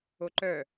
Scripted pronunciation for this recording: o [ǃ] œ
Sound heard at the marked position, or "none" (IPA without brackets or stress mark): ǃ